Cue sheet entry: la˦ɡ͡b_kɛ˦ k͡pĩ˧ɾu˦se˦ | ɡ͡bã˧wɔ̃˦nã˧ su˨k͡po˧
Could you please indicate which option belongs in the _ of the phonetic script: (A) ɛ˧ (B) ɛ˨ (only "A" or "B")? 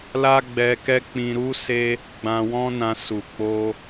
A